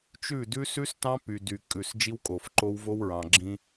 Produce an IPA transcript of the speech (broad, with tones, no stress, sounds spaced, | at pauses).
t͡ʃ ʉ˦˨ d ʉ˦ s ʉ˦ s t ɑ̃˦ p y˨ d y˨ kʼ ʉ˨ s d͡ʒ i˦ w kʼ o˨ f ǃ o˦ w v o˦ w ɹ ɑ̃˨ ɡ͡ǁ ĩ˦